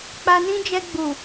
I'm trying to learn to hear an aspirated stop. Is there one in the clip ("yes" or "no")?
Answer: no